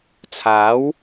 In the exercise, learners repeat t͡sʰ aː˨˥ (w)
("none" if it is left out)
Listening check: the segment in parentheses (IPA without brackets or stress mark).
w